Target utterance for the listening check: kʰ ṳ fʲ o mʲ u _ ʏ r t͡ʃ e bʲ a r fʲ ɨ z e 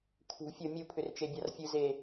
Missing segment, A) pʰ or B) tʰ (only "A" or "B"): A